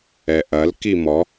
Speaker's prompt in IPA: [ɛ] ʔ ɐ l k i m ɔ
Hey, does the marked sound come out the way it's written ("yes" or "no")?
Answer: yes